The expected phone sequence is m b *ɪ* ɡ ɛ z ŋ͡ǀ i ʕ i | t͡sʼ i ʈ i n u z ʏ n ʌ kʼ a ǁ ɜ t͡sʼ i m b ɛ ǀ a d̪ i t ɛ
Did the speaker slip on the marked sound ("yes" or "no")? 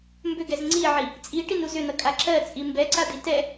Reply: yes